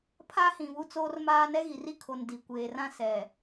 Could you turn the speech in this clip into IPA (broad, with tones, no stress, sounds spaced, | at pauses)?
pʰ a˦ h ĩ˨ β u˦ t͡s oː˦ r m aː˦ n ɛ˦ ɣ i˨ r i˦ kʰ o˨ n d i˨ kʷ eː˨ r ã˦ s ɛ˨